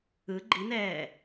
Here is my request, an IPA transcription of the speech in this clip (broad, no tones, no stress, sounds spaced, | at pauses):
ɯ ɡ͡ǃ i n ɛː